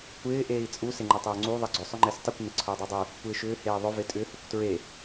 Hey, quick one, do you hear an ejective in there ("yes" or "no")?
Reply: yes